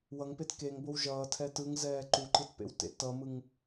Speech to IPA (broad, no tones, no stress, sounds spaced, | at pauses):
w ʌ ŋ p e t k e ŋ b o w ʒ ʌː tʰ ɛ t ɯ ŋ z ɛː ǃ u ǃ ɯ t p ḛ w t ḛ t ʌ m ɯ ŋ